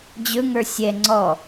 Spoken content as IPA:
d͡ʑɵŋə˞ sʲɛ ŋ͡ǀɔ

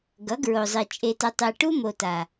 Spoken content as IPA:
ɡʌ˨˦ɡɹo˨zˤi˨ t͡ʃʼe˧tʌ˧ tˤe˨ ʈu˦mo˨ta˨

